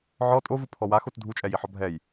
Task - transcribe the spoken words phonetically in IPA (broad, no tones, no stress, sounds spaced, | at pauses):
ʕ ɔ tʼ o v u pʰ ɔ w a x o t dʱ u t͡ʃʼ ɛ j i ħ ɔ bʱ ɛ j